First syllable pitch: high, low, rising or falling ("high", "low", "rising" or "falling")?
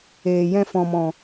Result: low